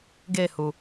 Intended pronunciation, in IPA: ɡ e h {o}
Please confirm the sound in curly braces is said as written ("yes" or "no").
no